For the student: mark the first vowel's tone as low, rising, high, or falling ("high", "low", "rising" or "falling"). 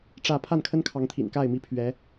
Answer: falling